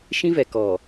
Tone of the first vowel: high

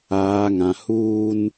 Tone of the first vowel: low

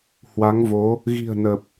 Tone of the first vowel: rising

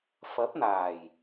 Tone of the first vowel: rising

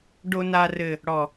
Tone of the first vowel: high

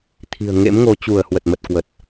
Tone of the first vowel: low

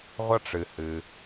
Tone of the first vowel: high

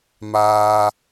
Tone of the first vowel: low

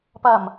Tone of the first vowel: low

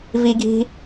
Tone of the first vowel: high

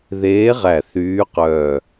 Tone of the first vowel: rising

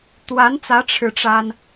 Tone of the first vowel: rising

